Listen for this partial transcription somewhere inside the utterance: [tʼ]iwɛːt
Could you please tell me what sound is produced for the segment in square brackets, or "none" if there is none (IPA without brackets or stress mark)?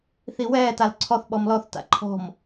θ